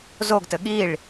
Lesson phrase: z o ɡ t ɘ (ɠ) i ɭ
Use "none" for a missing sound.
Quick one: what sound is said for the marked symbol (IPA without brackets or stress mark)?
ɠ